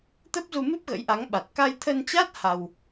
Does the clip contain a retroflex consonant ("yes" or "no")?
no